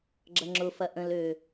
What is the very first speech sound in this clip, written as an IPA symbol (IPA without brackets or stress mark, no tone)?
ɡ͡ǁ